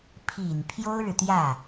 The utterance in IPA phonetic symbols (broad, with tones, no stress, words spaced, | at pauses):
pʰi˨˩n pʰjo˥ʊ̯ɻɻ̩˨t̪jä˥˩